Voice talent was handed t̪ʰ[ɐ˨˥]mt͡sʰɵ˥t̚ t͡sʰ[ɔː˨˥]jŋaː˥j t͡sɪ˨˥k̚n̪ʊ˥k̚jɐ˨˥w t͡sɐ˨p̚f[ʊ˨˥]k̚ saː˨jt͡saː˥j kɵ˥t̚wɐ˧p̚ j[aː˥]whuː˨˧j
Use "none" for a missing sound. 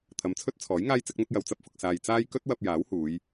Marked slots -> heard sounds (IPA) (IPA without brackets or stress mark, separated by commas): ɐ˨˥, ɔː˨˥, ʊ˧, aː˨˥